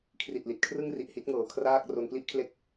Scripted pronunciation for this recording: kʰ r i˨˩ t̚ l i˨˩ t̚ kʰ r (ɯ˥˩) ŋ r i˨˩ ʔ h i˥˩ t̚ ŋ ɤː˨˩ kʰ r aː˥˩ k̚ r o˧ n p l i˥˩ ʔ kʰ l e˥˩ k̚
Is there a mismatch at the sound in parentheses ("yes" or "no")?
no